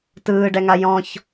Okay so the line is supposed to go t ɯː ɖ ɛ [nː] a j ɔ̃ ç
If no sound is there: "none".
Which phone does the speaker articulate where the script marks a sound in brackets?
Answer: ŋ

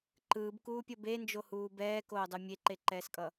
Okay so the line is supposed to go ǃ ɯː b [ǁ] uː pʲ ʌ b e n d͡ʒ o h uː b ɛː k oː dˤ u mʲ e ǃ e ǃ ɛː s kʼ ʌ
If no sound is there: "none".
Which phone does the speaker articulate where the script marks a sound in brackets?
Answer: k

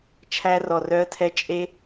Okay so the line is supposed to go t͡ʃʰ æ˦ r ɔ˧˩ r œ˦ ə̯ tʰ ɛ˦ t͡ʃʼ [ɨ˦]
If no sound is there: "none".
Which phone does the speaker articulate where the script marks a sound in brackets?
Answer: e˦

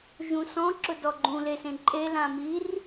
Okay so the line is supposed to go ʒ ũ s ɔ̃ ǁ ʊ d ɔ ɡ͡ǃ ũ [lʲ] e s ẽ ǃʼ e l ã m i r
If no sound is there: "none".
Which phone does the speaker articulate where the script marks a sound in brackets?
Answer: l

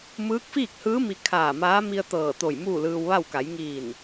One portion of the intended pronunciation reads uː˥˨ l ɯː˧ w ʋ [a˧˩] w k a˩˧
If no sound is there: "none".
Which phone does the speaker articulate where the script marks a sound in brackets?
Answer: a˥˨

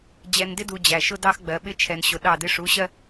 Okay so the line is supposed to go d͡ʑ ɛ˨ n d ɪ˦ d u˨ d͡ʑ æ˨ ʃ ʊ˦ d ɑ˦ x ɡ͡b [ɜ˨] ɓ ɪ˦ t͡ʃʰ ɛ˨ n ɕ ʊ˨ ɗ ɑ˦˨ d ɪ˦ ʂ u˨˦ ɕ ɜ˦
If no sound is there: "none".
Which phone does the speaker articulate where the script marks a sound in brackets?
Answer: ɜ˨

